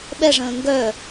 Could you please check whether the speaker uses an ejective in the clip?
no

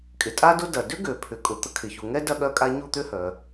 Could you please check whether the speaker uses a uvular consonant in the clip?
no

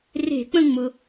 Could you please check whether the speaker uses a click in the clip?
no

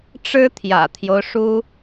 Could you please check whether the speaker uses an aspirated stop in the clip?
yes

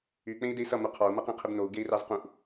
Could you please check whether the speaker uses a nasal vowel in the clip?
yes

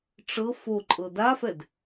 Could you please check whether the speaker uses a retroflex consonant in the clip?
yes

